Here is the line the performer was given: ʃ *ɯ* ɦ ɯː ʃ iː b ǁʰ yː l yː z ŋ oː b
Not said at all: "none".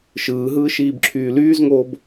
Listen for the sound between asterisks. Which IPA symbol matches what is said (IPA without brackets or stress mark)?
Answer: ɯː